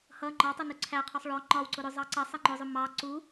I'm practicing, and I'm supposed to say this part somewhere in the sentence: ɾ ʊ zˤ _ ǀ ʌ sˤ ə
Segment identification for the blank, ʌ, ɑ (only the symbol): ɑ